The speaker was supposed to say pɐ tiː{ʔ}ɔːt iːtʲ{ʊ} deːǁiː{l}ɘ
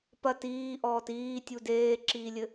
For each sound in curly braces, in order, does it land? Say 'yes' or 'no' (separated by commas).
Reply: yes, no, no